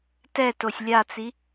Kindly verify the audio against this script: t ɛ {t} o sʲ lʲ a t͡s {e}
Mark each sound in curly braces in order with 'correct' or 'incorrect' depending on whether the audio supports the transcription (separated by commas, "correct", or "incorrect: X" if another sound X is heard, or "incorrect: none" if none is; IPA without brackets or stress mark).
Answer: correct, incorrect: i